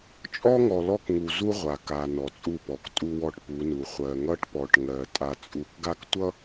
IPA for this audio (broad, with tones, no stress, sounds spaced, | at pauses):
t͡ʃʼ ɔ˦ ŋ ɔ˨ l ɔ˦ k ŋ u˨ z u˦ ʁʷ a˨ k a˨ n ɔ˨ t͡sʼ u˦˨ p ɔ˨ k tʼ u˦ w ɔ˦ ʈ p u˨˦ n u˨ χʷ ɜ˨ ŋ ʌ˦ ʈ p ɔ˨ ʈ ŋ ɜ˨ tʼ a˨ t͡sʼ u˨ k ɡ a˦ k tʷ ʌ˦